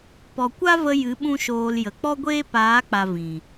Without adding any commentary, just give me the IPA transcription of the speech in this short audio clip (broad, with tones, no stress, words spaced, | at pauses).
pɔ˨kʷa˦və˧ jɨ˨˦ ɓũ˦ʃoː˧l jə˨ k͡pɔ˦ɡʷeː˦ paː˨˦k͡pa˨ vĩ˨